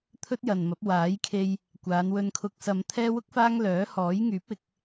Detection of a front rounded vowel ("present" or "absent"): present